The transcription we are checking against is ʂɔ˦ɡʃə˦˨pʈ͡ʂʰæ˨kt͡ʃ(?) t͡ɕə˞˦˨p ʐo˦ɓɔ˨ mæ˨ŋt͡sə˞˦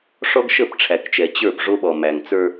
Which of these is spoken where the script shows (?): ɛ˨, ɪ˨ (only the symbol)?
ɛ˨